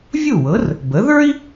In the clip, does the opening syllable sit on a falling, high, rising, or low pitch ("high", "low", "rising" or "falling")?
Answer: falling